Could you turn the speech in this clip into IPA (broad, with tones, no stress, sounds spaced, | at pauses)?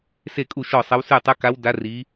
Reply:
s e˦˨ kʼ u˦˨ ʃ ɔ˦˨ sˤ ə˧˥ w s ʉ˦˨ tˤ ə˧˥ k a˧˥ w d a˧˥ r i˧˥